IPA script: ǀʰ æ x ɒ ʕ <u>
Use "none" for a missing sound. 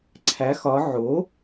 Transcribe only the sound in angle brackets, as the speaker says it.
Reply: o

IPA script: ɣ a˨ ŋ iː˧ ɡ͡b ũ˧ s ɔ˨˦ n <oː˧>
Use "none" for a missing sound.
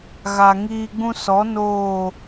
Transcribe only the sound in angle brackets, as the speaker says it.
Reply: oː˦˨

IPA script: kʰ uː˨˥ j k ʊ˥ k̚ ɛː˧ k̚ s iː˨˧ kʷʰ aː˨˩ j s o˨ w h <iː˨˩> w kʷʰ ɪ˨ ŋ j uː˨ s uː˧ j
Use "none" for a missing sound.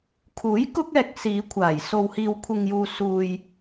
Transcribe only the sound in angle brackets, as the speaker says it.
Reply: iː˨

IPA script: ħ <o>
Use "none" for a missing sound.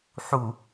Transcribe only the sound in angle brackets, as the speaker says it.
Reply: u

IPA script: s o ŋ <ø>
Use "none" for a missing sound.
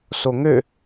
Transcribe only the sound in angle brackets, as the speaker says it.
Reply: ø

